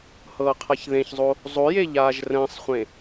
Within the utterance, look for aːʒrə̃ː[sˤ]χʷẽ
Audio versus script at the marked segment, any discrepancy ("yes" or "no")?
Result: no